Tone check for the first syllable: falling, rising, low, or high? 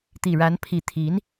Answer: low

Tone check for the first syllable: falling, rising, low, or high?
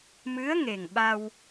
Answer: rising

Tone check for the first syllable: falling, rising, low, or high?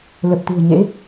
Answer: low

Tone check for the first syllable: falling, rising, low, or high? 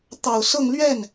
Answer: low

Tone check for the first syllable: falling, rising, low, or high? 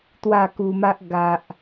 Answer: falling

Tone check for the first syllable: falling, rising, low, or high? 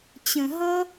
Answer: low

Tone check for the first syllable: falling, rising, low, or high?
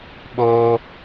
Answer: high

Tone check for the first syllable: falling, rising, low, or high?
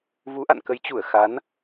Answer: rising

